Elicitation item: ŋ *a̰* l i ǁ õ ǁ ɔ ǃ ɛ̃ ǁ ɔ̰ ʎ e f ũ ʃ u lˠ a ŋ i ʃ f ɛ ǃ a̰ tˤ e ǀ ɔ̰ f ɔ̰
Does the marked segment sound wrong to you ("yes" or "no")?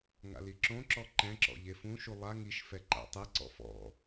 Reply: no